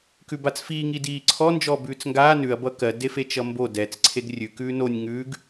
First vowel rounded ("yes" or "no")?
yes